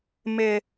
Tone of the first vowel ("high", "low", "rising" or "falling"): high